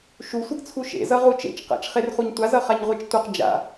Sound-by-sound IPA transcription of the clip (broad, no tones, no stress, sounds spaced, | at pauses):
ʃ u sʷ ʌ ɡ t͡sʰ u ʃ ḛ z ʌ ʁ u t͡ʃ ḛ t͡ʃ q a̰ t͡ʃ χ e r χ u ɲ tʷ a z ʌ χ a ɲ ʁʷ e t͡ʃ tʷ ʌ q d͡ʒ a̰